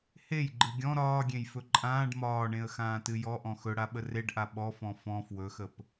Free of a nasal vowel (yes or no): no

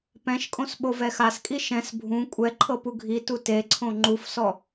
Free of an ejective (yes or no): no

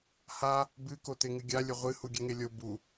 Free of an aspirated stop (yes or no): yes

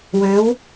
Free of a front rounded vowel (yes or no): no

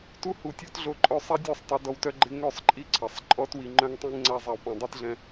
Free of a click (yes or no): no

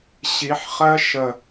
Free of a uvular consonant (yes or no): no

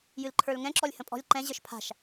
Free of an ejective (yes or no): no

